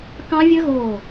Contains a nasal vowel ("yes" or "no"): yes